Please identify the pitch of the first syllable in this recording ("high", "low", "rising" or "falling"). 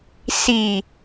low